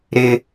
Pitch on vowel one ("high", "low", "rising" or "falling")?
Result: high